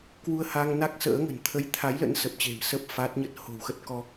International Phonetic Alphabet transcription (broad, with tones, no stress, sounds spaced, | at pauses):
k w u˧ ə̯ h a˧ ŋ n a˦˥ k̚ s ə̰ː˧˥ ŋ ə̤˨˩ n t̪ʰ ə˨˦ j t̪ʰ a˨˦ j l ə̰˧˥ n s ə˨˩ p̚ t͡ɕ e̤˨˩ m s ə˦˥ p̚ f a˦˥ t̚ ɲ ə˦˥ t̚ h o̤˨˩ w x ə˦˥ t̚ k ɔ˧